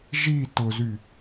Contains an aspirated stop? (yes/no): no